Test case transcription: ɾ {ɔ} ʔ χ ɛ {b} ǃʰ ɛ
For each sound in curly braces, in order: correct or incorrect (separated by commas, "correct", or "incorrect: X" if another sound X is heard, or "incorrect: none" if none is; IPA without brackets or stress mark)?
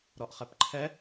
correct, incorrect: p